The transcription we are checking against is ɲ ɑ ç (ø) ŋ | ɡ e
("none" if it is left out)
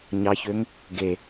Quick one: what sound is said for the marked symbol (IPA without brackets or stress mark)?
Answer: ø